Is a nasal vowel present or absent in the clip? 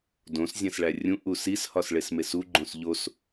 present